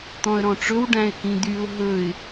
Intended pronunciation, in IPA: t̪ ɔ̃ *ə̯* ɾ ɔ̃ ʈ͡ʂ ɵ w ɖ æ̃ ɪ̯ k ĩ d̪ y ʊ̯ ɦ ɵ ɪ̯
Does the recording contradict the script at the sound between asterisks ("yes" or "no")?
no